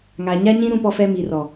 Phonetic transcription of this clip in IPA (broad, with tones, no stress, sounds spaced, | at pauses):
ŋ a˨ ɲ a˦ ɲ ĩ˦ ɾ ũ˦ p ɔ˦ f ɛ˦ m i˨ r ɔ˨